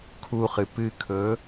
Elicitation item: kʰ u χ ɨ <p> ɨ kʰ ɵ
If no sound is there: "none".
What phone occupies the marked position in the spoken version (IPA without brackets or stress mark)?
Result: p